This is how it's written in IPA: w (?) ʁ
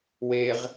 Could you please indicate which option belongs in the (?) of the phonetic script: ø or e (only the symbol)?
e